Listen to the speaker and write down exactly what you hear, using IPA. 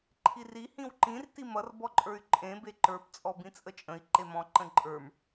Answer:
ǃʰ i r i h ĩ w ǃ ĩ r t i m ʌ r b ɔ ǃʼ ə˞ y̯ ǃʼ ẽ b e ǃ ə˞ p t͡sʼ ɔ b ĩ t͡sʼ ə t͡ʃʼ ə̃ i̯ ǃ e m ɔ̃ ǃ ə̃ ǃʼ ə˞ m

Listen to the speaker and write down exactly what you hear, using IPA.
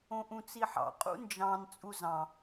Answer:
õ ʔ ũ t͡s i ħ ɑ̰ qʼ ṵ n d͡ʒ ɑ̃ n t͡sʼ u z ɑ̃

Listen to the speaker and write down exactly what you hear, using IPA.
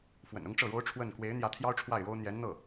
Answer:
f w ə̰˨˩ n ʊ˥ ŋ ʈ͡ʂ ɤ˥˩ ɻ o˥ ʊ̯ ʈ͡ʂʰ w ə˥˩ n k w e˧˥ ɪ̯ n̪ j ä˧˥ t̪ʰ j ɑ˥ ʊ̯ ʈ͡ʂʰ w a˥˩ ɪ̯ ɻ o˥ ʊ̯ n̪ j ɛ˧˥ n n̪ ɤ˥˩

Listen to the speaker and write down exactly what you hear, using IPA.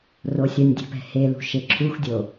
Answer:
r o sʲ ɐ nʲ dʲ e̤ p ɛ̤ h e l ṳ ʃ e ǁʰ u x dʲ o

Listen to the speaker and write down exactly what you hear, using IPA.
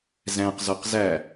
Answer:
z æ̃ q z ɔ q z æ

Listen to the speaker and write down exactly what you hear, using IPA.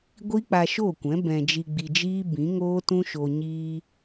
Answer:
ɡʷ i˦ k͡p a˧ ʃ o˦˨ kʷ ɛ̃˨˦ b ɛ̃˧ d͡ʒ i˧ ɡ͡b i˧ d͡ʒ iː˦ b ĩ˨˦ ŋ oː˦ t ũ˦ ʃ o˧ ɲ iː˧

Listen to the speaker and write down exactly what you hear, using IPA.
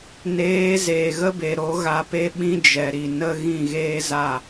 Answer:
n eː˨˦ z eː˨ ɣ ə˦ b e˨ ɾ o˨˦ ɣ a˧ p e˦ ɓ ĩ˦ d͡ʒ ɛ˨ ɾ i˨ n ə˧ ɣ ĩ˦˨ ɣ eː˦ z a˦˨

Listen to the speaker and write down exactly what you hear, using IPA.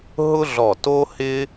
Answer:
ɦ ʊ˥ ɮ ɔ˧˩ t o˥ h ɪ˥

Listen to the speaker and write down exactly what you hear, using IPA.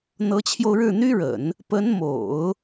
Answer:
n̪ ɤ˧˥ t͡ɕʰ j o˧ ʊ̯ ɻ ɻ̩˥˩ n̪ y˥ ɻ ə̰˨˩˦ n | p ə˧˥ n m o̰˨˩˦ ʊ̯

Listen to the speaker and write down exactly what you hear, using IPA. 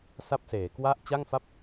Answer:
s a˥˩ p̚ s eː˩˦ k w a˥˩ ʔ t͡ɕ a˥˩ ŋ f a˥˩ p̚

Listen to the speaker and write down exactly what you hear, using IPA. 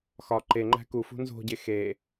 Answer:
x ɒ ǃ e ŋ͡ǃ æ̤ k u f ṳ n z o̤ ɟ e x e

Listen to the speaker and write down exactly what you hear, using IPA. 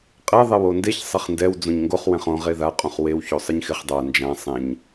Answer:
qʼ ɛ ðˤ ɛ w o n d e ç sˤ e χ n d ɛ w d͡z õ ɲ ŋ ɡ o χ w ɛ̃ χ õ ʁ e ð a qʼ ũ χ w e w ç o sˤ ɪ ɲ x ɪ χ dˤ a n d͡ʒ ã sˤ ẽ ɲ

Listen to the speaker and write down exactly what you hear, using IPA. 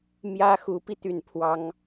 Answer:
m j ä˥ x u˧˥ p i˧ t̪ y˥˩ n pʰ w ɑ˥ ŋ

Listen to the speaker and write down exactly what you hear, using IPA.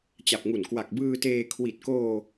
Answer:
t͡ɕ a˨˩ p̚ ŋ u˨˩ n k w a˨˩ k̚ b ɯː˧ t eː˧ kʰ w i˨˩ t̚ k oː˧

